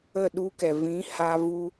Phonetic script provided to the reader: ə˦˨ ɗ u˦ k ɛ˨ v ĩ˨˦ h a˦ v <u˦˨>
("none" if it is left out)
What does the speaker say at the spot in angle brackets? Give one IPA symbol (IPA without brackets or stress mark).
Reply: u˦